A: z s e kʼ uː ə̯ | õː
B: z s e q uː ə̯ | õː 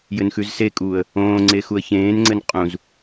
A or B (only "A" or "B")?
A